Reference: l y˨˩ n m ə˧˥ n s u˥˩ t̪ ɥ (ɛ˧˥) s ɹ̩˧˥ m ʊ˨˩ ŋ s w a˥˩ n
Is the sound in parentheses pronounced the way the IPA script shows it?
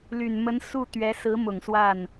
yes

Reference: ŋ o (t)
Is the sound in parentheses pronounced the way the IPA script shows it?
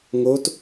yes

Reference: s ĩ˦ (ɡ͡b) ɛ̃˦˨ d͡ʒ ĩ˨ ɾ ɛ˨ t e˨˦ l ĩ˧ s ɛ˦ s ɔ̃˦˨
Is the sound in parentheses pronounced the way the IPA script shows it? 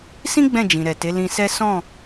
yes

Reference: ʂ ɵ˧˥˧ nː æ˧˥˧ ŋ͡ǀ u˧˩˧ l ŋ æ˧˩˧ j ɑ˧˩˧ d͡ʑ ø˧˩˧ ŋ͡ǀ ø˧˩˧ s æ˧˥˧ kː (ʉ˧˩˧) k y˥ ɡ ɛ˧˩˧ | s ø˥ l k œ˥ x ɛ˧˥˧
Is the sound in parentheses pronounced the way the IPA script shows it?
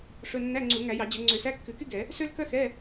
yes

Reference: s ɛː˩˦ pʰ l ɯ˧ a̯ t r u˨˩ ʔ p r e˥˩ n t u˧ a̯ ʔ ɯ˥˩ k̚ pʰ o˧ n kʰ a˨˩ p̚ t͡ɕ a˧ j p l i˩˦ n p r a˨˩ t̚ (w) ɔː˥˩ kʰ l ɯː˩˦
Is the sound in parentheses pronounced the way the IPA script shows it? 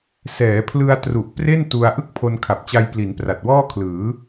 yes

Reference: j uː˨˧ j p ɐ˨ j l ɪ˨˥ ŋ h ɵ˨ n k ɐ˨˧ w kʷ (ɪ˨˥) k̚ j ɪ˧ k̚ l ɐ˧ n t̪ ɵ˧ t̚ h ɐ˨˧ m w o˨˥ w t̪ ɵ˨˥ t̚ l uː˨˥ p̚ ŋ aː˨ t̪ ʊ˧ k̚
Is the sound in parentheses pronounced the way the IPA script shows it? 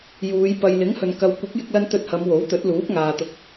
yes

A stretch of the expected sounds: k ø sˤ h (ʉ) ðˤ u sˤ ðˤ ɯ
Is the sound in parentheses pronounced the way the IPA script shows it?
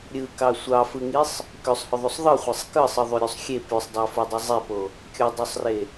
no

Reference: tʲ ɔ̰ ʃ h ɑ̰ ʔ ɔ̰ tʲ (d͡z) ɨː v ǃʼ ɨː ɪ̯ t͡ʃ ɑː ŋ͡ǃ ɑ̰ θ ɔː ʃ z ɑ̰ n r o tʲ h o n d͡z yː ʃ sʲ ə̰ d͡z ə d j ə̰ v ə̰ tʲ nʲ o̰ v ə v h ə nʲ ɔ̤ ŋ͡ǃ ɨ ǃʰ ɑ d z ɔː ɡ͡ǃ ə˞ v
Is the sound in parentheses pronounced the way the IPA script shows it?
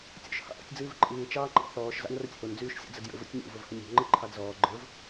yes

